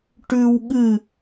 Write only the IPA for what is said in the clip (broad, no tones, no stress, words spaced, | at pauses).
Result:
ʈʉwɠɨ